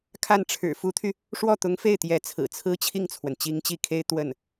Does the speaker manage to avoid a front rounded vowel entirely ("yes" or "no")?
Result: no